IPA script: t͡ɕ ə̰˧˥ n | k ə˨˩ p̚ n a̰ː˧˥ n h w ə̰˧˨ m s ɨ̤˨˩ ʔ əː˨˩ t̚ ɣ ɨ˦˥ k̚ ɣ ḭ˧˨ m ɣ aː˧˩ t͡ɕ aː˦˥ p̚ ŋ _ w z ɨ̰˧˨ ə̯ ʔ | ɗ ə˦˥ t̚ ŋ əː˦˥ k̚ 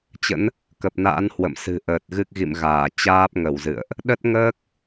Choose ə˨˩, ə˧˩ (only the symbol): ə˧˩